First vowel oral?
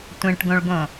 no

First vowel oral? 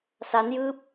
yes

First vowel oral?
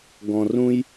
no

